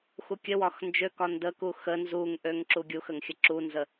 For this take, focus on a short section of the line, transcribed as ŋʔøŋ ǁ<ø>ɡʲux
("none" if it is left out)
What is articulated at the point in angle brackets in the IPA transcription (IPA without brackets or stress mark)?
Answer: u